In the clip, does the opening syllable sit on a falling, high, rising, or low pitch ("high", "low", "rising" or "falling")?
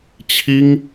high